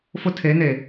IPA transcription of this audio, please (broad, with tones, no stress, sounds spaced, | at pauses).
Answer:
f ʊ˦ tʰ e˨˦ n eː˨